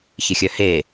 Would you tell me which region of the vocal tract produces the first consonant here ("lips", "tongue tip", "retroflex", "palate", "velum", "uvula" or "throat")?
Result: palate